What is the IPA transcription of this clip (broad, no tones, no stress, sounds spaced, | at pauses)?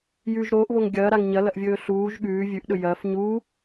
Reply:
j ʉ ʒ ɾ oː ʔ β o ŋ ɡʲ ɐː ɾ a ŋ ɲ ɐ l ɐ ʔ vʲ ɵː ɬ uː ʒ ɠ ʉː vʲ ʉ ʔ ɗ ɵ j ɐː f ɲ uː